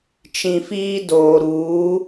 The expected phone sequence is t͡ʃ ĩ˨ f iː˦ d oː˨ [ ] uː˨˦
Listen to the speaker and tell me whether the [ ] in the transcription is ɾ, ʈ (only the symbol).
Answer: ɾ